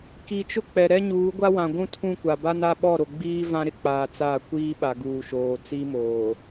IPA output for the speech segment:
ki˨t͡ʃʊ˦k͡pɛ˨ ɾɛ˦ɲuː˨˦ɡʷa˦ wã˨ɡʷũ˦tʰũ˦˨ kʷa˨ba˦na˦ ɓɔ˦˨ ɾo˨ɡ͡biː˦ vã˦ɾɪ˦k͡paː˨ t͡sa˦˨kʷiː˦ɓa˨ ɡuː˨ʃoː˨ t͡si˦moː˨

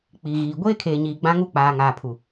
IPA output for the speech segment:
k͡pi˨ɣiː˨ ɡʷeː˦kʰeː˨ɲiː˨ ɡ͡bã˦ŋu˦k͡paː˨ ŋaː˨pʰu˨

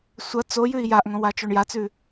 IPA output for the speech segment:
sʷɐ t͡so jʉi̯jaʔŋõ wat͡ʃoɳjat͡sʉ

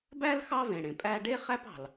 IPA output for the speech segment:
bæ˥l xɑ˥vẽ˩ɽẽ˩ pʼæ˥ ɖe˥χæ˥p ɑ̤˩l

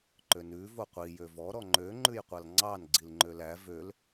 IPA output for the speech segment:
ǃønʉ voqʷi jøvɔ ɾɔŋ͡ǃø ŋ͡ǃʉjqʷɑlŋ͡ǀɑn ɡ͡ǀilŋ͡ǃølæ vøl

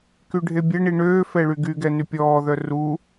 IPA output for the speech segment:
kyɖʱebʲɛɳi ɳøː fɛɭyɡyɡɛ nypʲɔːðœ ru

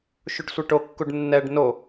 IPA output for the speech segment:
ʃuɖsʷeʈo kːuɖnːɛɖ no

